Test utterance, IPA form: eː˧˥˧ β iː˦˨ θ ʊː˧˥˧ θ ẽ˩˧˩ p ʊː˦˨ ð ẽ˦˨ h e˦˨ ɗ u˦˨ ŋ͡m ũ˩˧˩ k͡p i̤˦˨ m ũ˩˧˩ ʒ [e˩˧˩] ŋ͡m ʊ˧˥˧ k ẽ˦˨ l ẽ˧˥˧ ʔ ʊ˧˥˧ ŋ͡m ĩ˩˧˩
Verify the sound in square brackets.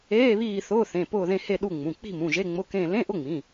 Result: incorrect: e˧˥˧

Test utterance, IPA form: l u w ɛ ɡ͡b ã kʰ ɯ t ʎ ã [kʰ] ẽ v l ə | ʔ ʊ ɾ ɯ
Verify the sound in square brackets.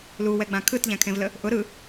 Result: correct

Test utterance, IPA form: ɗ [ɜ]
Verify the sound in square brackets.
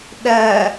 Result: correct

